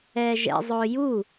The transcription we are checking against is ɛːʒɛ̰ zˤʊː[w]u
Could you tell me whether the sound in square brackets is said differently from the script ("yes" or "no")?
yes